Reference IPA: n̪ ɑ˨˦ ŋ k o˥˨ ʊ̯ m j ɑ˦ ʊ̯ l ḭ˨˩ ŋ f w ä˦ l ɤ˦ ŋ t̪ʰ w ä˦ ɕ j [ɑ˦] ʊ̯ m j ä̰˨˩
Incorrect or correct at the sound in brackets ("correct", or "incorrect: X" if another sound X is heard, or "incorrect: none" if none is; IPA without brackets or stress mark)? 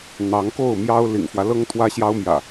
correct